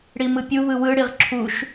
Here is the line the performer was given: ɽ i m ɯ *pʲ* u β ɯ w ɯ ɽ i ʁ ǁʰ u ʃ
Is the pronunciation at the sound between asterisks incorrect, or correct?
correct